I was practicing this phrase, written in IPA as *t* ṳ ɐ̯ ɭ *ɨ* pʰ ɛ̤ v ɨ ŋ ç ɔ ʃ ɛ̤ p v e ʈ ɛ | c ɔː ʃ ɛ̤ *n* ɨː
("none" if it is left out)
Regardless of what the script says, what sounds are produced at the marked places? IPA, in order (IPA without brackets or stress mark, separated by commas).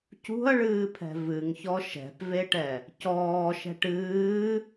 c, ɨː, ʈ